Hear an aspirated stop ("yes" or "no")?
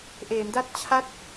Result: yes